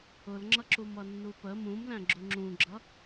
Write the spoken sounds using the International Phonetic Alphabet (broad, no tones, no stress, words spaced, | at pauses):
ʊlŋ͡ǁʌ ǁumʌnːupə mũmlæ̃ ɡ͡ǁuŋ͡ǁũɡ͡ǁʌ